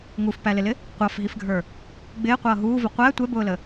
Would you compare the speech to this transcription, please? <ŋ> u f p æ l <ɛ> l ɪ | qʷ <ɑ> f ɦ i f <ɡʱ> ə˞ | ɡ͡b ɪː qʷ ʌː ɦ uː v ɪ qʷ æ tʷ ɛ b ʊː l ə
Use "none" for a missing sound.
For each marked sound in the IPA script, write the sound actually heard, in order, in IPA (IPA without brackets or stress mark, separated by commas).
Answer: ŋ, ɪ, ɑ, ɡʱ